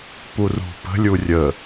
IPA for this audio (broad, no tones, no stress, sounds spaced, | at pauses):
p u r ṳ p ə̤ lʲ u rʲ ə